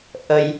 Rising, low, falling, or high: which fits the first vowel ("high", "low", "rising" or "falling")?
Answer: low